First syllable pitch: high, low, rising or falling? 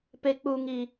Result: low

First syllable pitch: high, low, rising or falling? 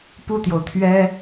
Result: falling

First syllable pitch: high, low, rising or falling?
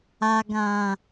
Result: low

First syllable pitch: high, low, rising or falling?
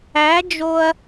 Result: rising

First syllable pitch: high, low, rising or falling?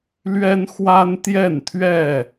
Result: high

